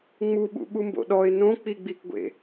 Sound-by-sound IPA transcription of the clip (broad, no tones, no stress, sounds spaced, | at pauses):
ŋ͡m u ɓ ṵ ɓ u m b o̰ ɗ ɔ ɪ̯ n õ k͡p i ɡ͡b i k ɡʷ ḛ